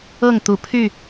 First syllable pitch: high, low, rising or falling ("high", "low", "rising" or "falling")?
falling